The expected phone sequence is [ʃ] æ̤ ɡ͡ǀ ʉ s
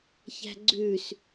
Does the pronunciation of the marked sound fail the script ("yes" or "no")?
yes